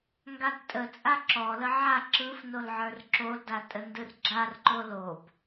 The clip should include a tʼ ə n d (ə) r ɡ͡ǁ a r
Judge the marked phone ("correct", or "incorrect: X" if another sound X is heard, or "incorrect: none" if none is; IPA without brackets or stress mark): incorrect: ɯ